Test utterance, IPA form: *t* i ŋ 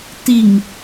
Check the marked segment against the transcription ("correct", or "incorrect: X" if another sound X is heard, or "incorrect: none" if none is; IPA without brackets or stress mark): correct